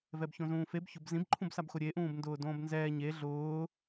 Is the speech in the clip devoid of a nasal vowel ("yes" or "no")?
no